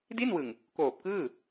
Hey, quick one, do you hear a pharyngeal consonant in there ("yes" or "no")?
no